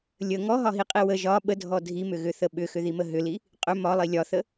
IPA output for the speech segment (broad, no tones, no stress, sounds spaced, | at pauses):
lʲ ə ŋ ɔ ɦ ɒ ɦ i qʼ i w ə ʒ ɒ ɓ ə dʱ ɔ dʱ i m ʏ ɣ ʏ θ ə ɓ ʏ x ʏ ð i m ə ɦ ʏ l i | qʼ ʏ m ɒ lˠ i lʲ ɒ θ ə